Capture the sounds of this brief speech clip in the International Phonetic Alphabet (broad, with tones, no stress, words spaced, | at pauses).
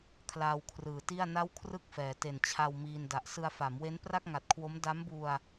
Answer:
kʰlaː˧wkʰrɯː˨˩ti˥˩a̯ na˥˩wkʰrɯ˥˩k̚fɛː˩˦ te˨˩nt͡ɕʰa˧w miː˧nda˨˩ʔ sɯ˧a̯fa˩˦m we˦˥npra˥˩k̚ŋa˨˩t̚kʰwo˦˥m da˦˥mbu˧a̯